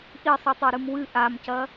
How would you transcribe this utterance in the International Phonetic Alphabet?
ʔ i sˤ ʉ tˤ o ɾ ɨ m w ɨ ʔ a m c ɐ

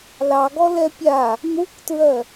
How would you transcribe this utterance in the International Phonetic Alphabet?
l ɑ ɡ ɔ l ɛ pʲ a | n̪ u kʷ t ɹ ɜ

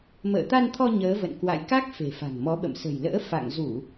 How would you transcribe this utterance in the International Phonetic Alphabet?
m ə̰ː˧˨ t̪ a˧ n t̪ʰ ɔ˧ ɲ əː˨˦ v ə̰˧˨ n k w a̰˧˨ j k a˦˥ k̚ f e̤˨˩ f a̤˨˩ ŋ m ɔ˨˦ ɓ ə̰˧˨ m s ə̤˨˩ j l ə̰ː˧˥ f a̰˧˨ ŋ z u˧˩˨

